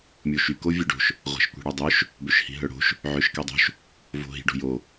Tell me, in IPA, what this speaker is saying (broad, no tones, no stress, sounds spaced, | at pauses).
mʲ o ʃ y k o vʲ ø ɖ o̤ ʃ | ʁʷ ɛ̤ ʃ kʷ i̤ ɽ œ dˤ ø ʃ | b ø ʃ h i̤ ɦ œ ɽ o̤ ʃ | ʕ ø ʃ k ɛ dˤ o̤ ʃ | v o̤ ɦ i̤ ɖ o̤ j o